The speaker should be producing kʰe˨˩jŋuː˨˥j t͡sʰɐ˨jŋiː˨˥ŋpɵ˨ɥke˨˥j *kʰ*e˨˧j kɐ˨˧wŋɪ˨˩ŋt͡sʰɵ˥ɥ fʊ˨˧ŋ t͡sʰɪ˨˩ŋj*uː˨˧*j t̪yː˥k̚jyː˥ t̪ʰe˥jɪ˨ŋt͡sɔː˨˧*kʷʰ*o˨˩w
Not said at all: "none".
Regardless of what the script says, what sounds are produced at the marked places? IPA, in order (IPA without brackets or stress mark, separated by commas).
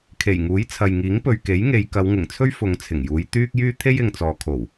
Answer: ŋ, uː˨˧, kʰ